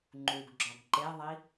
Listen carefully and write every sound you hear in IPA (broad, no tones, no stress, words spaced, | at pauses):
ŋ͡ǃuɡɡ͡ǁɒɡ ǃeðˤi